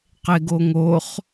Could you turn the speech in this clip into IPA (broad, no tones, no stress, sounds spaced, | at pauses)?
q e ɡ o ŋ o χ